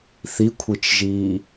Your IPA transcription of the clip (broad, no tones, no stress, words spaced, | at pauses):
θikʷʰit͡ʃʒiː